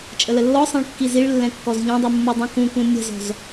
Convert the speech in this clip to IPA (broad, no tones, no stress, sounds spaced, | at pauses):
t͡ʃʼ ə l ə lː ɔ sˤ ẽ ɭ kː i z i ɭ lː ɛ̃ kː ɔ z ʎ ɔ̃ dˤ u mː ə dˤ ũ k ũ k ũ nʲ ə̤ z ɔ̤ z